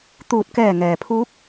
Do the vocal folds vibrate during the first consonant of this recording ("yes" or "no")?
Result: no